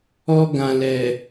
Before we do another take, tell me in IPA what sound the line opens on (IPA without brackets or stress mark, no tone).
ɔ